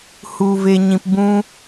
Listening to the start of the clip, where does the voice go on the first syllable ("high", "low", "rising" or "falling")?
low